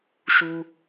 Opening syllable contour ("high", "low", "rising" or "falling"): high